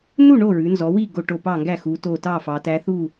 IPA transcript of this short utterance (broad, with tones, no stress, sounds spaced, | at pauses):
n u˥˨ ɳ o˥˨ ɹ ʉ˩˧ n z ɔ˩˧ w i˥˨ ɡ o˥˨ ʈ o˥˨ p ɑ˥˨ ŋ ɡ æ˥˨ x u˩˧ t o˧˩ t ɑ˥˨ f ɑ˩˧ t æ˧˥ θ u˥˨